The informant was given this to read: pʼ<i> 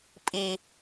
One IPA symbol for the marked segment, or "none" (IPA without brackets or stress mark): i